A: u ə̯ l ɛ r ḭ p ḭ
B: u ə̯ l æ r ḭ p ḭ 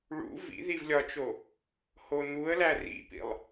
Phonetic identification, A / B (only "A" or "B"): B